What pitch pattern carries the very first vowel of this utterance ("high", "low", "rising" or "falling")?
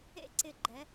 high